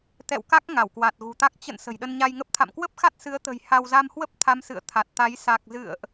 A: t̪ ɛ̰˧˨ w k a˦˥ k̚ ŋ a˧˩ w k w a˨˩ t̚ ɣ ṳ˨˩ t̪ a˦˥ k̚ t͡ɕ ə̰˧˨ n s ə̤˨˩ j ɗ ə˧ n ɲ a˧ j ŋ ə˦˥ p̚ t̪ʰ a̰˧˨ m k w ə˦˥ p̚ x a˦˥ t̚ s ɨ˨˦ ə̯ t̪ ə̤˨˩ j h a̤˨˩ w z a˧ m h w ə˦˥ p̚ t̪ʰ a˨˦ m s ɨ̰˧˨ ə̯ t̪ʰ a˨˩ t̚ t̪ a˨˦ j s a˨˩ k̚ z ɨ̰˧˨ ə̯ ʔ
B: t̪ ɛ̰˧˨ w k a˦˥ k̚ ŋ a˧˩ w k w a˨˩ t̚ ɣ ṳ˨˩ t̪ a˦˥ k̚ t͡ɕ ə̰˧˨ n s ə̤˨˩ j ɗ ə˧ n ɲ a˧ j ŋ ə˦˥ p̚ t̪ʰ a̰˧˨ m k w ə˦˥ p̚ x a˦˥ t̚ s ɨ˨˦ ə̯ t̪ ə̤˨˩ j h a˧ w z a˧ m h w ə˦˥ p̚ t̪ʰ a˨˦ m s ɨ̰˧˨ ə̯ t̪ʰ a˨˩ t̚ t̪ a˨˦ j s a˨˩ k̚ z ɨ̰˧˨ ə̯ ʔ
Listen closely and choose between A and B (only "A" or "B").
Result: B